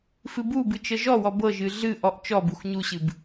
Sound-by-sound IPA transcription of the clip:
f ɨ b u b ɨ t͡ʃ ɤ ʒ ɔ w ɔ b ɤ ʒ ɨ ɮ ɨ ʔ ɔ ʔ t͡ʃ ɔ b u x ɲ u ɕ ɨ b

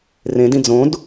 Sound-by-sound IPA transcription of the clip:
r ẽ d ĩ d͡z õ d

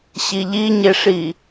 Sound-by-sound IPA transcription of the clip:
ɕ i ʎ i ɲ e ʂ i

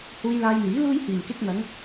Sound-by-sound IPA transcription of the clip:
h uː˧ j l aː˧ j n̪ iː˨˥ l uː˥ j h iː˨˩ m k ɪ˧ k̚ n̪ ɐ˨˧ ŋ

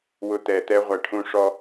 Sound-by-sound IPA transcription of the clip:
w ʊ˧ t̪ ɛ˨ t̪ ɛ˦ ʁʷ æ˨ ʈʰ ũ˧ ʂ ɔ˧

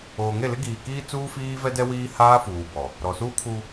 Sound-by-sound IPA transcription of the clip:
oː˨ ŋ e˦˨ l ɪ˦ ɡ iː˨ k iː˦ t͡s uː˦ f iː˦ v ɛ˦ d ɛ˦ w iː˦ h aː˦ f uː˨ b ɔ˨ | ɾ ɔ˨ s uː˦ kʰ uː˦

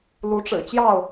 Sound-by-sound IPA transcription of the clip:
l u˨˦ ʈ͡ʂ ɻ̩˨˩ t͡ɕ j ɑ˥˨ ʊ̯

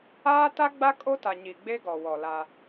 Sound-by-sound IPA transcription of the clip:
aː˦ t a˦ ɡ͡b a˦ kʼ o˦ t a˨ ɲ i˨ ɡ͡b e˦ ɡ ɔ˨ w ɔ˨ l a˦

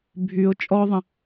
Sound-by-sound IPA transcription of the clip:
bʱ y ʊ̯ t͡ʃʼ ɔ ðˤ ə̃

